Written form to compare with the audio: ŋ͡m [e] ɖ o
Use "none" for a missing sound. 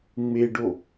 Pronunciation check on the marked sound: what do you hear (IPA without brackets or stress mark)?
e